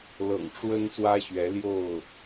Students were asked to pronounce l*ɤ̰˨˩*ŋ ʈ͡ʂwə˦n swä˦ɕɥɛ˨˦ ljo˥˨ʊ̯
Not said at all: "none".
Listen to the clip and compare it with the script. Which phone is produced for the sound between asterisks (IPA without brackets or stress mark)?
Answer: ɤ̰˨˩